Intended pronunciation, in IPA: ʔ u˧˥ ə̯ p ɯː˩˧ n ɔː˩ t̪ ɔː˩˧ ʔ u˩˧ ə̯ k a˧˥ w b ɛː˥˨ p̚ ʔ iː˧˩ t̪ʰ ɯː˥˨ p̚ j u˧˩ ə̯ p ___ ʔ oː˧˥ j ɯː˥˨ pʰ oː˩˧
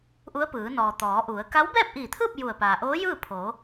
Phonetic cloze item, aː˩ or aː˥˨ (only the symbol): aː˩